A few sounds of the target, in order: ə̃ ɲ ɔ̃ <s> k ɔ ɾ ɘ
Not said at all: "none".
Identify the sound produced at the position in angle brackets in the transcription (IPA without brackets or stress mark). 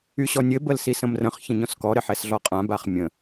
s